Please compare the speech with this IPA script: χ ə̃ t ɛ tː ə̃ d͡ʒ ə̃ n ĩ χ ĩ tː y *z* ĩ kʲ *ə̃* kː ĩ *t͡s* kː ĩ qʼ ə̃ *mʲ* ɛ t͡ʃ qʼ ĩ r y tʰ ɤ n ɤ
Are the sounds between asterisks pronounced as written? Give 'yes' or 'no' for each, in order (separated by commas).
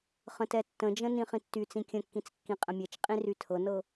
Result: no, yes, yes, yes